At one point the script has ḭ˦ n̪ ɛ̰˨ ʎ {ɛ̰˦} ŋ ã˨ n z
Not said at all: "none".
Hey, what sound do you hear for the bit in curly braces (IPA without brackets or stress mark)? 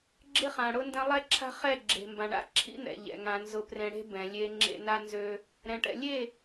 ɛ̰˨